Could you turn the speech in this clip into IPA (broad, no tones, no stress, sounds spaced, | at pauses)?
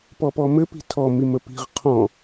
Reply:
p ɔ p ɔ m ɘ p i̤ tʰ ɔ m i m ə p i̤ ʁ qʰ ɔ̃